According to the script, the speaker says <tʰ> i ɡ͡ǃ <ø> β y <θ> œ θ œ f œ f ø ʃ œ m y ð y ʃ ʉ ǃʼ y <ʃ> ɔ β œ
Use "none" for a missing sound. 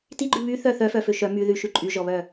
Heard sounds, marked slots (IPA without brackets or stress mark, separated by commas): t, ʉ, θ, ʒ